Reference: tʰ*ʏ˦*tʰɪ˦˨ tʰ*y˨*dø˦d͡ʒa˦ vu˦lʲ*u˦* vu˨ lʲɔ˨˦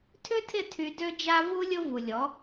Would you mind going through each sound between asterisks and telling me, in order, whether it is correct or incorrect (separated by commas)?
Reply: correct, incorrect, incorrect